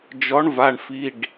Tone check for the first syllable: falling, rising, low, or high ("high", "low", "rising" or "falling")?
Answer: rising